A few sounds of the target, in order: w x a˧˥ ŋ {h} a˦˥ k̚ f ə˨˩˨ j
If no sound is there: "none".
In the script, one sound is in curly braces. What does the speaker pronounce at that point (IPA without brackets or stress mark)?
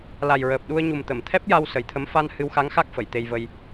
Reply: x